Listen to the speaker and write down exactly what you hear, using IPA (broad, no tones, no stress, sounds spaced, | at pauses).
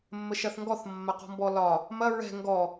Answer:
mː ə ʃ ɐ θ ŋ ɡ ɔ θ mː ɐ q ɔ̤ m b ɔ l ɒ | m ɐ ɹ ɛ̤ ŋ ɡ ɔ